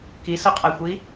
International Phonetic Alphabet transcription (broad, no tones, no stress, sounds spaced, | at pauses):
k i s ʊ qʼ a xʷ i